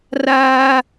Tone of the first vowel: high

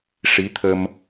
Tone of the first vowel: rising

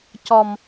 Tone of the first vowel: high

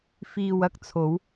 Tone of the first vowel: low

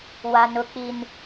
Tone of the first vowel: low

